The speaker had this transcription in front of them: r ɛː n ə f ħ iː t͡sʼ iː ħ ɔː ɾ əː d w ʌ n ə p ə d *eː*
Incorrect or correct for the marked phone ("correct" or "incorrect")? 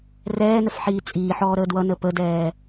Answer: incorrect